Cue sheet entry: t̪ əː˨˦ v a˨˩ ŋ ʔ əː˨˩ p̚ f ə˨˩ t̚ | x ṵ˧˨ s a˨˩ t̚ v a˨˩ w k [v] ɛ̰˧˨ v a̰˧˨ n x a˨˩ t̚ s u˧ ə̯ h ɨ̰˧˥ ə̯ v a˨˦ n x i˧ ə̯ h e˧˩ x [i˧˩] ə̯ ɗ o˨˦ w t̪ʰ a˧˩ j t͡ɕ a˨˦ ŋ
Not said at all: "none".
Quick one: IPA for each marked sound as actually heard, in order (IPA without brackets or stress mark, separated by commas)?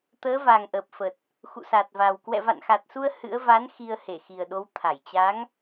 w, i˨˩